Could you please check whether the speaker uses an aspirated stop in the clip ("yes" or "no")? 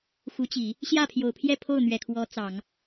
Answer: yes